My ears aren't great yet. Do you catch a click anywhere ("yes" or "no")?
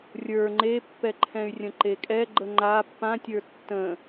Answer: yes